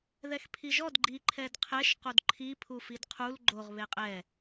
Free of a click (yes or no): no